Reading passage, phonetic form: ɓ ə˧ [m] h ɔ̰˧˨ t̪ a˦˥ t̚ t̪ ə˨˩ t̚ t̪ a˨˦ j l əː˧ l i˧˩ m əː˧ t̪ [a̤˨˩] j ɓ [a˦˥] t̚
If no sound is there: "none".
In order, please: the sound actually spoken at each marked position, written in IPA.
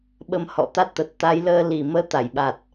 m, a˧˩, a˨˩

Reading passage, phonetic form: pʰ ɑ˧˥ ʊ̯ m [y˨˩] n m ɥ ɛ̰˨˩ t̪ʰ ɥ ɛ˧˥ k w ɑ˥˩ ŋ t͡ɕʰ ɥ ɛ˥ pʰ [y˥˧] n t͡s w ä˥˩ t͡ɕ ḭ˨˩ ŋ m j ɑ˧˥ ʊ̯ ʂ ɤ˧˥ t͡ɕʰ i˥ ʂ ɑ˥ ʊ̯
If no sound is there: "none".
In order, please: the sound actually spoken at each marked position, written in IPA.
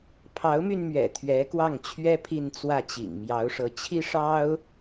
y˧, i˥˧

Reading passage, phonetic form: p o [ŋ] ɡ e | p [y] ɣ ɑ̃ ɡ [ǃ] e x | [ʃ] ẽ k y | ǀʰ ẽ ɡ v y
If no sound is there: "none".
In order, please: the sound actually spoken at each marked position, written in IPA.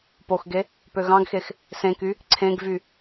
x, ø, x, s

